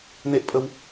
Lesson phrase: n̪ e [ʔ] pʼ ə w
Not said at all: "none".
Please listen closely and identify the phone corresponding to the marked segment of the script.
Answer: ʔ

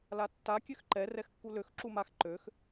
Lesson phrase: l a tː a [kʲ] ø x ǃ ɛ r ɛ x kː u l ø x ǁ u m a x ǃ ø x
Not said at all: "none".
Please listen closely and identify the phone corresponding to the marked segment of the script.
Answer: kʲ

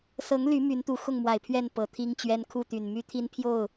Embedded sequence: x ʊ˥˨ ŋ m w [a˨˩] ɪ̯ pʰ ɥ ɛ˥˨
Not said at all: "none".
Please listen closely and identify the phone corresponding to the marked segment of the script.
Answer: a˨˩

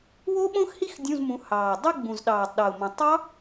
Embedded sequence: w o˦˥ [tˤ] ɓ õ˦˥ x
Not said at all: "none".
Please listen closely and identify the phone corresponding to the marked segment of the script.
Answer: none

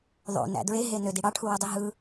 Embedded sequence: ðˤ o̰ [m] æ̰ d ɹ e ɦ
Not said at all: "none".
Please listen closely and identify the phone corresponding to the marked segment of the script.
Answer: n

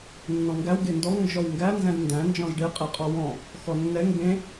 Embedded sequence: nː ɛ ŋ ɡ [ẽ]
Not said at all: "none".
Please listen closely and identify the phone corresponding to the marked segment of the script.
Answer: ẽ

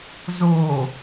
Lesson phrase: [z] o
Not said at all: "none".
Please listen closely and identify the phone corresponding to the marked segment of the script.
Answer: z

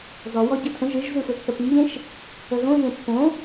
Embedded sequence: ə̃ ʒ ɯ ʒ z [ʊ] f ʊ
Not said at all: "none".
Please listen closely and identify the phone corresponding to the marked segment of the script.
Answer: ɯ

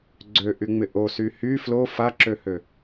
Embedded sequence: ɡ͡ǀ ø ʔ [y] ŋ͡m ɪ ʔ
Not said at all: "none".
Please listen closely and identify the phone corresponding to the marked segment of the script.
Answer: y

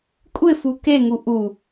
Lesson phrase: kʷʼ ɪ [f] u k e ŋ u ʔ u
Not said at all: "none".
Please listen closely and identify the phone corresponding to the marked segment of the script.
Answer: f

